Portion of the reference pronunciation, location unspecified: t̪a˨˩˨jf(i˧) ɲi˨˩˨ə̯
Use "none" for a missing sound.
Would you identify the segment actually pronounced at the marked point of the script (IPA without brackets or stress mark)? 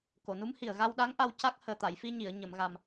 i˧